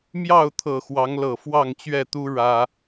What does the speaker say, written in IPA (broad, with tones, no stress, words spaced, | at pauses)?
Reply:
mjɑ˥˨ʊ̯t̪ʰɤ˨˩ xwɑ˨˦ŋlɤ˨˩ fwɑ˥˨ŋt͡ɕɥɛ˥˨t̪u˦ ɻä˦